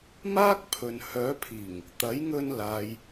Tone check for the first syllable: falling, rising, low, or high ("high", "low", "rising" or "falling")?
high